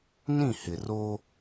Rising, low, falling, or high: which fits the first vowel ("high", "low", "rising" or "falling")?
falling